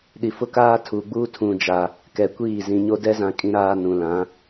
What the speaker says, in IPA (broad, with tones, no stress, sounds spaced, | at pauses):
ɗ i˨ f ʊ˦ k aː˦ tʰ u˨ ɡ͡b uː˦ tʰ ũ˨ d͡ʒ a˨ | k ɛ˨ kʷ iː˦˨ z ĩ˨ ɲ o˦ d ɛ˦ z ã˨ kʼ ĩ˨ ɾ aː˦ n ũ˨ l ã˨˦